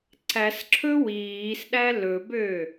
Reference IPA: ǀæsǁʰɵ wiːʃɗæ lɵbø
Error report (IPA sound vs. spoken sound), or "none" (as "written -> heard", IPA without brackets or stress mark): ʃ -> s